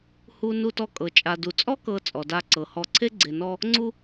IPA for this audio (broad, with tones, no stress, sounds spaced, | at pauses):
h u˨ n u˨ t ɔ˨ kʼ ɤ˩ t͡ʃʼ a˨ d u˩ t͡sʼ ɔ˦ k ɤ˨ t͡sʼ ɔ˩ d a˨ ǀ ɤ˩ h ɔ˨ ǀʰ e˦ ɡ͡ǀ e˨ n ɔ˦ | ŋ͡ǀ u˦